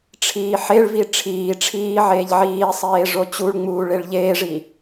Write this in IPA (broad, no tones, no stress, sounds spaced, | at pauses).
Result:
ʈ͡ʂʰ iː ħ e ɭ v i ʈ͡ʂʰ iː ʈ͡ʂʰ iː ʕ eː ʎ ʕ iː sˤ eː ʐ o t͡ɕ u ɭ ŋ͡m uː ɭ e ɭ ʎ eː ʐ i